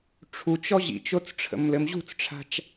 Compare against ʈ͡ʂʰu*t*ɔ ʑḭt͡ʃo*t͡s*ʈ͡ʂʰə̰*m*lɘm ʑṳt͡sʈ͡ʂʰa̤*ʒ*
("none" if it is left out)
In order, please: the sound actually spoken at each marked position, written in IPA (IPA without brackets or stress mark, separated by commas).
t͡ʃ, t͡s, m, t͡ʃ